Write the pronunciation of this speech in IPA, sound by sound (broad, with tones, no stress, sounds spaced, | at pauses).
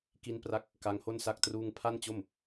k i˧ n p r a˦˥ k̚ | k a˦˥ ŋ h o˥˩ n s a˥˩ k̚ t r uː˥˩ ŋ pʰ a˥˩ n t͡ɕ o˥˩ m